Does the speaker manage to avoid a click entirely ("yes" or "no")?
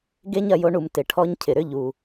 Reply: yes